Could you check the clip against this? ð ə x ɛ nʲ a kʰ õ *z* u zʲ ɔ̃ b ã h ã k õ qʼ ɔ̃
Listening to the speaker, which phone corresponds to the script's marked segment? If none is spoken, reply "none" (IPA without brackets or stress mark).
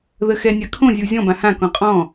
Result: zʲ